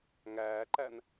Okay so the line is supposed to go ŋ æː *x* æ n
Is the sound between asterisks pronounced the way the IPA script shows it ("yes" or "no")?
no